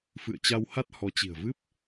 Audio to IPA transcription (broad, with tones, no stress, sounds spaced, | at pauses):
f ɨ̰˧˨ ə̯ t͡ɕ a˧ w h a˦˥ t̚ h ɔ˨˦ t͡ɕ i̤˨˩ ə̯ v ɨ˦˥ p̚